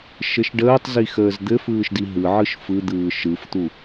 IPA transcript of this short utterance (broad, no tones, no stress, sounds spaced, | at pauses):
ʃ ɘ ʃ ɖ əː tˤ z i x əː z d̪ ɘ f ɯː ʃ d i ɦ ɯ ʕ ɯ ʃ f ɯ d̪ ɯː ʃ ɯ f t̪ u